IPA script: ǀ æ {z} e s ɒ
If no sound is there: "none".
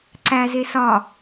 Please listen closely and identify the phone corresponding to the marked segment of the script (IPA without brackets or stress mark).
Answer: z